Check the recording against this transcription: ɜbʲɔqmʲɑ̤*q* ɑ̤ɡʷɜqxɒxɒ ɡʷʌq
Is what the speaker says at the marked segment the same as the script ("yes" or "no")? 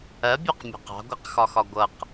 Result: yes